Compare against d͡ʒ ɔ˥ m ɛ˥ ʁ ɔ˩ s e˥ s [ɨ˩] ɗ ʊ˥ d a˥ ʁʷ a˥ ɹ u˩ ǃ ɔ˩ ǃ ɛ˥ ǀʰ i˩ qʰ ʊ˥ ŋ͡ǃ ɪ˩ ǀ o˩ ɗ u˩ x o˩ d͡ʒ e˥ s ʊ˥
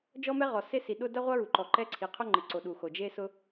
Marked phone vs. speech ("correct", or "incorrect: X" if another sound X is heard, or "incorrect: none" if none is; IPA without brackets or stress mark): incorrect: i˩